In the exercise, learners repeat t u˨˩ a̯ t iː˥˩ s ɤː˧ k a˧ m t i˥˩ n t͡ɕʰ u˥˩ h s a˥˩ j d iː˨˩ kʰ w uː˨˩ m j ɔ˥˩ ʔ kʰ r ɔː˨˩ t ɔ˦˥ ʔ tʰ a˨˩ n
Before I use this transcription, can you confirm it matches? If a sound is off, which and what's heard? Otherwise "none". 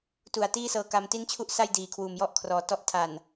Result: h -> ʔ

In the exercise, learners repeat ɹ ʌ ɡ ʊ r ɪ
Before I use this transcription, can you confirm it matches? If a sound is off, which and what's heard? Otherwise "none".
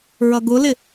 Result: r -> l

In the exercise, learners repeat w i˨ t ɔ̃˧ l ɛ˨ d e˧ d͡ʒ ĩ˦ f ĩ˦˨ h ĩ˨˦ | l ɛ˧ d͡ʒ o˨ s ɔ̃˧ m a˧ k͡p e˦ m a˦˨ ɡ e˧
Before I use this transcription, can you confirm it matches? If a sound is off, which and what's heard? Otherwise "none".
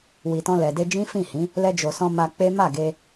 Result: none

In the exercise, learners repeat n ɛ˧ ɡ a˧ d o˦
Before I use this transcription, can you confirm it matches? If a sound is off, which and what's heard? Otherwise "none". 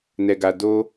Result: none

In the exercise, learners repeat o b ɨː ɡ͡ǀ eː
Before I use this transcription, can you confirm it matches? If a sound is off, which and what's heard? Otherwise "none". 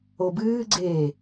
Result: none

